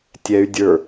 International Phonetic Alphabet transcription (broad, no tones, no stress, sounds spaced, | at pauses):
tʲ ɛ y̯ dʲ ə˞